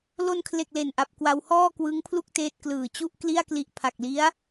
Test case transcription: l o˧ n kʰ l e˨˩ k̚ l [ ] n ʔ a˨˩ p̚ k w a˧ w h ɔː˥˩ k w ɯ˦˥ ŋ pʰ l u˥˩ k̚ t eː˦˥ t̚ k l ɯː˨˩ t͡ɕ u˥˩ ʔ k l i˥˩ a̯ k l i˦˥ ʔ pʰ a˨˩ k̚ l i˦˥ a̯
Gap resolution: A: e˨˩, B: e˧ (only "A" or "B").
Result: A